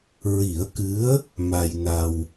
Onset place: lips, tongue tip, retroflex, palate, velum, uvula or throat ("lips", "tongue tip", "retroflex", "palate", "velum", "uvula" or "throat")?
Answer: tongue tip